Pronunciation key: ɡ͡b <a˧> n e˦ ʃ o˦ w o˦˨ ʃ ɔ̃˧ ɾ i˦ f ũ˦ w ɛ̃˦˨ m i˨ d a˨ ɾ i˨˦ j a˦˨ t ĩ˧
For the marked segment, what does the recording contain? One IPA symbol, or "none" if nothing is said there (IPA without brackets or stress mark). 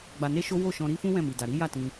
a˧